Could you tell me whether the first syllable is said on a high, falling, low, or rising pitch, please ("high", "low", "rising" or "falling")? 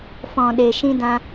low